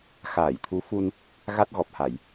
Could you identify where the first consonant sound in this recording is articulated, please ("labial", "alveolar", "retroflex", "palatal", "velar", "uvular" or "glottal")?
velar